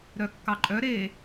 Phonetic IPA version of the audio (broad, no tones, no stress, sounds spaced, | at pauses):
ɾ œ kː ɑ ǃʼ œ ɾ e